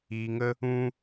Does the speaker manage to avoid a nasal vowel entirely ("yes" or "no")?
no